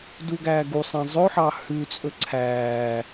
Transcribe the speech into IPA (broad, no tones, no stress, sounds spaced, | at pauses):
d u ɡ æː ɡ u sˤ æ̃ zˤ ɵ ħ ɑ h ʉ t͡sʼ ɵ ǀʰ æː